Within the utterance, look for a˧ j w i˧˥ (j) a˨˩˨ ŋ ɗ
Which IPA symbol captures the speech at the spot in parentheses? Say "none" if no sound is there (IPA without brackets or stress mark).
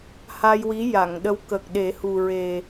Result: j